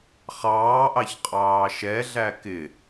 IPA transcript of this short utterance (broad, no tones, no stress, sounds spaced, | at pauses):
χ ɑː ʔ ɑ ç qʼ ɑː ʃ ɛ ɮ æ k ɪ